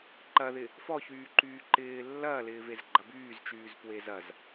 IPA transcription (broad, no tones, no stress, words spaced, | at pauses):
ǃɐðɪ | fɔçyːǃyː ǃɪː lːɐːlɪːvez ɡ͡ǃɐbyːzt͡ʃyːz pwezɐz